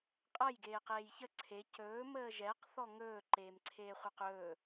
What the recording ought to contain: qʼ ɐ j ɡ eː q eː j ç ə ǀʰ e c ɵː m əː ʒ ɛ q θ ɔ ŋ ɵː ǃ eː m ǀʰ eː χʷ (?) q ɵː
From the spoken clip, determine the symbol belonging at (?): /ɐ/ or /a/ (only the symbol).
ɐ